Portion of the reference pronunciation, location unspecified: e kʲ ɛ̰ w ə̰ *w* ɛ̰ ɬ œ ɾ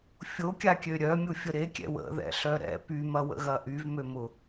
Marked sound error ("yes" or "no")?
yes